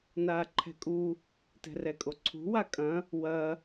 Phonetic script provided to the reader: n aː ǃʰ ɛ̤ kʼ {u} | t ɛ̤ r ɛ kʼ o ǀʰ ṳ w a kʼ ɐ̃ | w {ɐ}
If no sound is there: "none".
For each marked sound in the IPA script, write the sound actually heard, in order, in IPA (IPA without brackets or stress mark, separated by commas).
u, ɐ